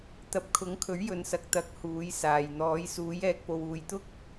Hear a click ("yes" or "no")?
no